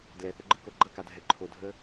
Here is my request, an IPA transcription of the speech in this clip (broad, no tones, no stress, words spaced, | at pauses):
dlɛθəɡ͡ǃɯko ɡ͡ǃʌkadʱɛ ǃʰodʱə